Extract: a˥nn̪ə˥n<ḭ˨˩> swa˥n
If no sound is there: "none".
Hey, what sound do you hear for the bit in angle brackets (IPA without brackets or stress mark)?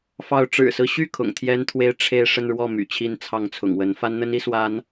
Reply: i˧˥